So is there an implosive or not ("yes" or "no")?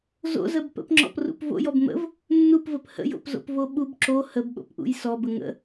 yes